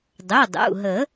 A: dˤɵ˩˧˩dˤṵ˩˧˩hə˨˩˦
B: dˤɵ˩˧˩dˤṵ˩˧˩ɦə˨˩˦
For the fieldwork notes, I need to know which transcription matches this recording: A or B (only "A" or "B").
B